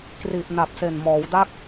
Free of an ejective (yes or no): yes